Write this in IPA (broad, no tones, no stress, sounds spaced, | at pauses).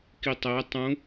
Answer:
k i tˤ æ tˤ ũ